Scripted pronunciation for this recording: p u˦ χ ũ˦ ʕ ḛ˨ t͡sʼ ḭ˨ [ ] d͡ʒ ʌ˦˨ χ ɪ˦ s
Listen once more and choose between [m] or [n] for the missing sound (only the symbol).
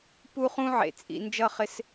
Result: n